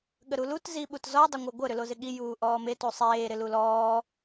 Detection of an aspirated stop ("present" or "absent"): absent